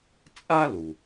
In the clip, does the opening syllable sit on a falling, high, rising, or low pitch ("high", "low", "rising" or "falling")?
high